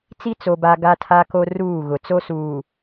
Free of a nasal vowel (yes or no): yes